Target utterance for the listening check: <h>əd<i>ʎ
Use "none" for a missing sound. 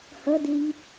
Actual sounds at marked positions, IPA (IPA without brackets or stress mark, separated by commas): h, i